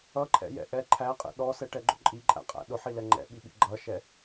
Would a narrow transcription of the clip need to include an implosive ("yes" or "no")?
yes